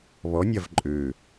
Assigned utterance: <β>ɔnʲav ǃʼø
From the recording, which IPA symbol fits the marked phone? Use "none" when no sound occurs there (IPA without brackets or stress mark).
β